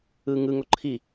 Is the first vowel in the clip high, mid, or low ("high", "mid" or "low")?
high